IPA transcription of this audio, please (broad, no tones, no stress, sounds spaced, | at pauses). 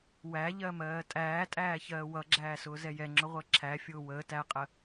w æ ʎ ɜ m ɜː tʼ æː tʼ æː ç ɜː w ʌ ɡ͡ǁ æː s ʊː z ɛ j ɛ ŋ͡ǁ ʊ ʁʷ ɜ ǁʰ æ fʲ ʊː w əː t æ qʼ ə